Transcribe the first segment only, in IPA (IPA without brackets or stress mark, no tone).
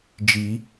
d͡ʒ